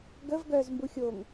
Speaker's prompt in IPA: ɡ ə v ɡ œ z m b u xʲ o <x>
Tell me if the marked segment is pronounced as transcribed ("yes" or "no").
no